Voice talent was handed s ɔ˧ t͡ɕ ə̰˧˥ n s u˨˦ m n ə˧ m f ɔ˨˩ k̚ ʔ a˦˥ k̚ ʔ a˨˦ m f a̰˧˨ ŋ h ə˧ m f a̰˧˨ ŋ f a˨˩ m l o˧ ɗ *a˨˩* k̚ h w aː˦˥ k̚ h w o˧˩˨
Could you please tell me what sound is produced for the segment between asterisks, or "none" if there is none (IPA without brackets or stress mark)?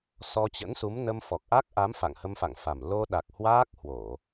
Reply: a˨˩